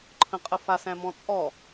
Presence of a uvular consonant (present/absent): present